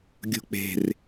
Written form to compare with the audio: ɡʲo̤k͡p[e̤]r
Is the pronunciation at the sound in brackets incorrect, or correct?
correct